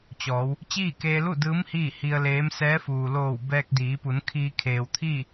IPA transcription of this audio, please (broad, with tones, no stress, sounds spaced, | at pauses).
t͡ɕ ɔː˩˧ w | t͡ɕ iː˥˨ k eː˧ l u˥˨ d ɯː˧˥ m h iː˥˨ h i˧ ə̯ l eː˧˥ m s ɛː˧˥ f uː˩ l oː˧˩ w b ɛː˧ k̚ d iː˩˧ p u˩˧ n kʰ iː˧ kʰ eː˩ w t̪ʰ iː˥˨